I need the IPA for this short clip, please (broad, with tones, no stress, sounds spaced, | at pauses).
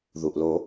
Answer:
ð u˩ ʔ l o˨˩˦